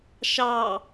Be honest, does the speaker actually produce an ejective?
no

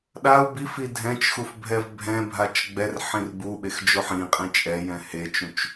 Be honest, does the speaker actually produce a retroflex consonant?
no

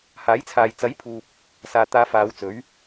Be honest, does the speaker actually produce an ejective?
no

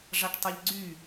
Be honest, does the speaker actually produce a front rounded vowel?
yes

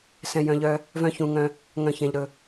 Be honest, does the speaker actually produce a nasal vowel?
yes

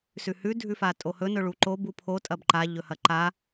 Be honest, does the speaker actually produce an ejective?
yes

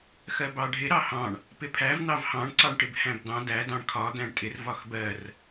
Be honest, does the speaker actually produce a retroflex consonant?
yes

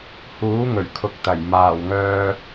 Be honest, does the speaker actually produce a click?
no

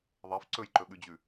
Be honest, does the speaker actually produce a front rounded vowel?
no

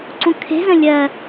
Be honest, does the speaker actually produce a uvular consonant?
no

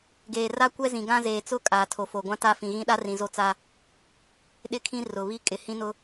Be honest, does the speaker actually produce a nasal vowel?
yes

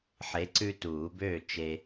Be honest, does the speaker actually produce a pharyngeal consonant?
yes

